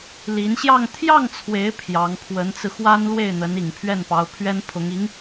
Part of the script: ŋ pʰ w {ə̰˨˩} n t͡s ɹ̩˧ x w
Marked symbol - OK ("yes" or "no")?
no